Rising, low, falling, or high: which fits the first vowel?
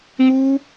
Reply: high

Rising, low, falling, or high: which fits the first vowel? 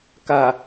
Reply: low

